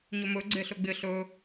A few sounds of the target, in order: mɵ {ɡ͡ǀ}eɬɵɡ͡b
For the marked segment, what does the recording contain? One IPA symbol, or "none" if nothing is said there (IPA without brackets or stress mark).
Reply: ɡ͡ǀ